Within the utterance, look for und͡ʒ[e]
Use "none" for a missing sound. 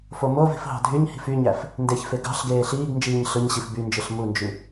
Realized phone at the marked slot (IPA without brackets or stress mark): y